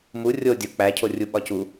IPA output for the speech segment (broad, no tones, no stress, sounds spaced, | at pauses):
m u rʲ o dʲ o k͡p æ cʰ o rʲ u ɓ ɒ c u